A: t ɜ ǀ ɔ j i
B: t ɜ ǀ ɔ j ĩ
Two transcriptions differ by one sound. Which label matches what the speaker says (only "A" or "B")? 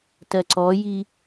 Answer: A